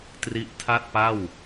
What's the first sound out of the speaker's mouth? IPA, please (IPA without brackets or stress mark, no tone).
t